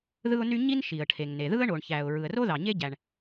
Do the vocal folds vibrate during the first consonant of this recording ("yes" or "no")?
yes